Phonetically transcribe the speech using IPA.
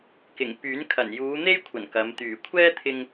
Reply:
kɪ˨˩ŋpyː˨˥n kʰɐ˨˩njuː˨˧ n̪e˥jkʷʰɐ˨˩n kɐ˨˧m t̪yː˨˩kʷʰɛː˥t̪ʰɪ˧ŋ

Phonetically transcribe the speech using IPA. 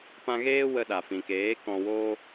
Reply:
pã˧ɣeː˦ wə˧ɗa˨fĩ˨keː˨˦ kɔ̃˨woː˧

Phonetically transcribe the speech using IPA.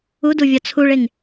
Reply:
uduvʲɒ t͡sʰuɭeŋ

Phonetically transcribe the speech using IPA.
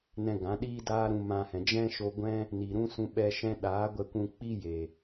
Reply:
nɛ̃˧ɡã˨˦ ɗiː˦daː˦ɾũ˧ mã˧hɛ̃˨ d͡ʒɛ̃˦ʃo˧ɡʷɛ̃˦ | ni˨ɾũ˦sũ˧ ɓɛ˧ʃɛ̃˦ ɗaː˨˦ɡʷɛ˧kʷũ˧ k͡pi˦je˨

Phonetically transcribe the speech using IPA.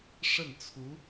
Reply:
ʂə˥˩nt͡sʰu˧˥

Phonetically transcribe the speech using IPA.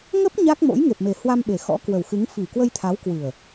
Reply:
ŋə˦˥p̚ ɲa˦˥k̚mo̰˧˥j ŋe˨˩p̚me˨˩ hwa˧mɓe˨˩ xɔ̰˧˥kwə˨˩wxɨ˨˦ŋ fi˨˩kwə˧jt̪ʰa˨˦wkwɨ˨˩ə̯

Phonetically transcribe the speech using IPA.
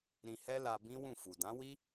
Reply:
ɾĩ˧hɛ˦la˧ bĩ˦wũ˦˨fu˨ dã˨˦wi˦

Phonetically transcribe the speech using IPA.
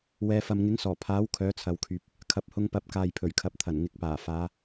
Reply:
wɛː˨˧fɐ˨m ŋɪ˨˥ŋsɔː˨˩pʰaː˨˥w kʰœː˨˥t͡sʰɐ˨wkʰyː˨p̚ | kʰɐ˨p̚hʊ˧ŋpɐ˨˥p̚kaː˨j pʰɵ˨˩ɥkʰɐ˨p̚t̪ʰɐ˨˩n ŋɪ˨˥k̚paː˨˩ faː˨˧

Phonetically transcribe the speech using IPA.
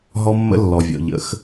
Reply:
ɦɔ˦mːə̰˦ lːɔ˨vʲɔ̰˨ ʎə̰˨˦x

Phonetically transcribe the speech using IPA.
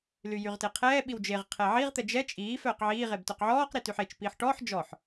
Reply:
lyjyʁteqʰɛː ɓiwd͡ʒeʁ qʰɛʕiʁ t̪ɛd͡ʒɛ t͡ʃʼiː fœːqʕiː ʁebtœqʕɔːq ɾityħet͡ʃ piːħʈɔːħ d͡ʒɔħ

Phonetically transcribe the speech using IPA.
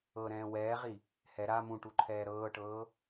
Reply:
ɤɾɛ̃ː wɛːʁi | hɛ ɾa mũʈuǃʰɛː ɾɤːʈɤː

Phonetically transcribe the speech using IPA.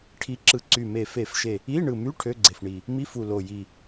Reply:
ʈʰi˨˥ǁɯ˨˩ǀy˨˩me˨˩ fe˨˩˦fʃe˨˩ | i˧˥˧ ɳɯ˨˩my˧˥˧ ʈʰø˧˥˧ɡ͡ǀe˨˩fɳi˨˩ | mi˧˥˧fu˨˩ lo˨˩ji˨˩

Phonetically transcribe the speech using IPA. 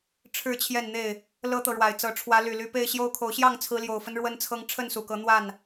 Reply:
ʈ͡ʂʰɻ̩˥˨t͡ɕʰjɛ˥˨nn̪e˥˨ɪ̯ | lɤ˦t̪ɤ˨ɻwa˨˩ɪ̯t͡sɤ˨˦ ʈ͡ʂʰwä˨˦ly˨˩ly˨˦ pe˥˨ɪ̯ɕjo˦ʊ̯kʰo˨˦ʊ̯ ɕjɑ˥˨ŋt͡sʰɹ̩˨˦ljo˨˩ʊ̯fə˦n ɻwə˦nt͡sʰɤ˦ŋ ʈ͡ʂʰə˥˨nsu˨˩kɤ˨˦ n̪wa˥˨n

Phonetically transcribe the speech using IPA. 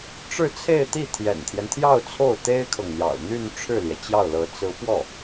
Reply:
ʈ͡ʂɻ̩˥˧t͡sʰe˥˧ɪ̯t̪i˥˩ t̪ʰjɛ̰˨˩nt̪ʰjɛ˦nt̪ʰjɑ˥˧ʊ̯ t͡sʰo˥˩ʊ̯t̪e˥ɪ̯kʰɤ˨ŋn̪jɑ̰˨˩ʊ̯ n̪y˥˧nʈ͡ʂʰɻ̩˥˩ljɛ˩ t͡ɕjɑ˥˩ʊ̯lɤ˧˥ t͡sɹ̩˧˥pwɔ˥˩

